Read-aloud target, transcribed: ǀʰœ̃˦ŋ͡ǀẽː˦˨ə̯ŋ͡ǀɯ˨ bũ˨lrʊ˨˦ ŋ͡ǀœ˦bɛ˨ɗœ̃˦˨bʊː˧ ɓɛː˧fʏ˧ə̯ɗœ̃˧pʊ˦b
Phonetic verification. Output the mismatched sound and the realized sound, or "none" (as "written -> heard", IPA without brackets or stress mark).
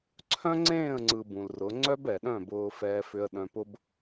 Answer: ɓ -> f